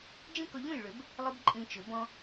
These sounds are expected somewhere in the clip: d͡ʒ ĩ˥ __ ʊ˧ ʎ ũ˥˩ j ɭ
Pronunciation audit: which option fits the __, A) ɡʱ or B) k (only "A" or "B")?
B